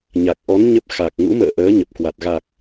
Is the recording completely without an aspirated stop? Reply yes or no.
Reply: yes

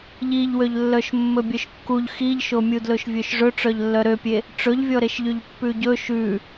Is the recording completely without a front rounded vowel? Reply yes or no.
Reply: no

